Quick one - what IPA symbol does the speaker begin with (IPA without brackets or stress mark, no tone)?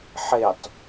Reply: ħ